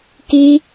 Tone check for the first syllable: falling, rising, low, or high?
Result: high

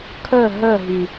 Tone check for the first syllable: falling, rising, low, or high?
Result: falling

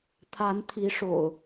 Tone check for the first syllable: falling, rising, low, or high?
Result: rising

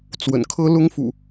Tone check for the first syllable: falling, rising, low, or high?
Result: low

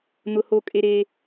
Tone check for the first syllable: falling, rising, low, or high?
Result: high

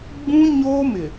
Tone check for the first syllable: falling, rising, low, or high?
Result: high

